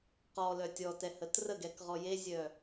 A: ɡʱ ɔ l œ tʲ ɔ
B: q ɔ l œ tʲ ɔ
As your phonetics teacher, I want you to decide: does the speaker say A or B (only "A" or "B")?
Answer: B